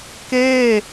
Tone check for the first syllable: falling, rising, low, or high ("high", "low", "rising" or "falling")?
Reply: falling